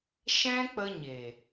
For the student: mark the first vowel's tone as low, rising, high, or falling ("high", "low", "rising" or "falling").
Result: high